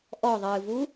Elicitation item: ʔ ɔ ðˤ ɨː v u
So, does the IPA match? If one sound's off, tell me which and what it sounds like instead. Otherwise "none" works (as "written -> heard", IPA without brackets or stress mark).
none